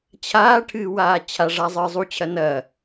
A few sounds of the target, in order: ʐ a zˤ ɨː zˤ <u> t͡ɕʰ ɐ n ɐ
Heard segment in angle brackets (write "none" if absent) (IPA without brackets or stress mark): u